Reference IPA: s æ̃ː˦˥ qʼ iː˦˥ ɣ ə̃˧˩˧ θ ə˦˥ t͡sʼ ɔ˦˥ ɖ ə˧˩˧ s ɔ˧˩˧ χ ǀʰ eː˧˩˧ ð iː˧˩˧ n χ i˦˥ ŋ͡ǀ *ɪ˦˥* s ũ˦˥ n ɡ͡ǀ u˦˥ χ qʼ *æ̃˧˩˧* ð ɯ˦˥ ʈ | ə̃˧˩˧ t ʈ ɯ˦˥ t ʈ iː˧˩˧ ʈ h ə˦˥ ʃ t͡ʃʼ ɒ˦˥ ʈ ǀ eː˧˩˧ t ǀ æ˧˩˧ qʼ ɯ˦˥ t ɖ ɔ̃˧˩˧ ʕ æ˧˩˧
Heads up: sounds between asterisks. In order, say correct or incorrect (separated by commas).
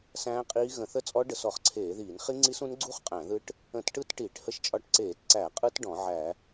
incorrect, correct